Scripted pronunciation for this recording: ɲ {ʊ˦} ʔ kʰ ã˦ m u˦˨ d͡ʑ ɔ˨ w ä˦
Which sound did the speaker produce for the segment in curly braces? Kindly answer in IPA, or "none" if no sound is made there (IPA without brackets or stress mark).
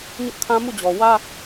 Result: ʊ˦